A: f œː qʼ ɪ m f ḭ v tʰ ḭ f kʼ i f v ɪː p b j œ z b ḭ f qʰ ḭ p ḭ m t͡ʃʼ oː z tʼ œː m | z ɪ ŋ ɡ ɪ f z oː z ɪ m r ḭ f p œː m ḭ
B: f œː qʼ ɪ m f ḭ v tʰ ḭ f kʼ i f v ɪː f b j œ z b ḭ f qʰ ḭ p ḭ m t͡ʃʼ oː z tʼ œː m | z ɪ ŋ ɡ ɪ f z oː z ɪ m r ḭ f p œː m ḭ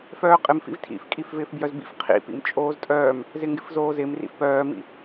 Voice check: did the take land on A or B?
B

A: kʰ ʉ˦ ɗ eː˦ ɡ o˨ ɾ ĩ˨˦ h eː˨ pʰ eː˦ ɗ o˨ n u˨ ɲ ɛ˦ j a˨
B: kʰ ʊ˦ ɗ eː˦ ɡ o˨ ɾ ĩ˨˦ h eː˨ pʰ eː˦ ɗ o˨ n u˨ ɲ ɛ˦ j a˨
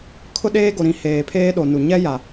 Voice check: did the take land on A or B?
B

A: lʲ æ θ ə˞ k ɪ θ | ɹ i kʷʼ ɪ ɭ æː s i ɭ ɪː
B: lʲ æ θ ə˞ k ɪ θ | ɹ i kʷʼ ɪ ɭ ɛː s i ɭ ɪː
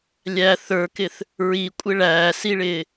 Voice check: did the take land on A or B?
A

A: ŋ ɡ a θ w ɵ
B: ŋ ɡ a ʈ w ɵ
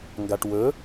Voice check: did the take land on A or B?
B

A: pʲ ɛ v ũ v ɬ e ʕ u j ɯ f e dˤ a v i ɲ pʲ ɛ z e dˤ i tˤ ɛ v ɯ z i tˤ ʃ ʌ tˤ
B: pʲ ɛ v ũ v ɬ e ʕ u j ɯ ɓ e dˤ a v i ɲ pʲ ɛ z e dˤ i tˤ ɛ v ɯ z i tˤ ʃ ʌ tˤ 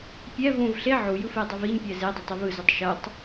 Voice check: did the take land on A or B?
A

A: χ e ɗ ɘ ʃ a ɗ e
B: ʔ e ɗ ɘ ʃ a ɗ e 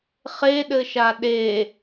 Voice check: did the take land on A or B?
A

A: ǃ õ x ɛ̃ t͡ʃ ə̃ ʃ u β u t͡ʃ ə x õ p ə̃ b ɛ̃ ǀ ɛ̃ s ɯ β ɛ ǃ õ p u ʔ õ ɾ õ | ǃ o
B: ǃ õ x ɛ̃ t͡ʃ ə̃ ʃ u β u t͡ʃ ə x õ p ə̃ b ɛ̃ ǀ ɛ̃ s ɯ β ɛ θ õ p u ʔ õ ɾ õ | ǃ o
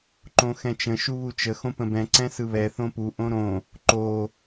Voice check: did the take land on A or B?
B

